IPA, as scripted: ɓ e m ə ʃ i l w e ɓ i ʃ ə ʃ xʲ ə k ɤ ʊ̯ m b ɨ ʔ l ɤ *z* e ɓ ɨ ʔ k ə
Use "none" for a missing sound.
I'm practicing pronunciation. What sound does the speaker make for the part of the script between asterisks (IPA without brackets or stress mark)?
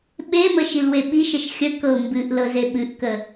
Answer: z